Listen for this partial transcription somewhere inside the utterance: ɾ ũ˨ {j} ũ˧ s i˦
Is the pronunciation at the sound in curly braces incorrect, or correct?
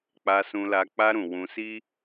incorrect